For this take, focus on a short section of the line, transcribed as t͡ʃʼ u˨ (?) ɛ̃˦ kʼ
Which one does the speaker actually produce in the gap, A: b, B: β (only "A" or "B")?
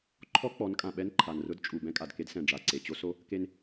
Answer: A